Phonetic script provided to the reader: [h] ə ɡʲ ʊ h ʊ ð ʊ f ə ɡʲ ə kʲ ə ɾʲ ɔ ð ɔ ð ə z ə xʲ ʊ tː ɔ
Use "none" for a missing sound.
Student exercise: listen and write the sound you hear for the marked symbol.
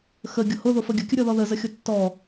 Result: x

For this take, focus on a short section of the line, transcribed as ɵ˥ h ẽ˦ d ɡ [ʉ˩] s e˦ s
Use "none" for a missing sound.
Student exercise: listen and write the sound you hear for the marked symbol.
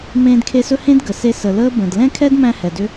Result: ə˩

